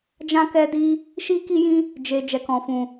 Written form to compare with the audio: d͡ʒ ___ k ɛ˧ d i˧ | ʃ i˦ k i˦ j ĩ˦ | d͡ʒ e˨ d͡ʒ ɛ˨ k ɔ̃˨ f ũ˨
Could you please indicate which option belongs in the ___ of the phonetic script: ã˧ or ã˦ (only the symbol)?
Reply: ã˧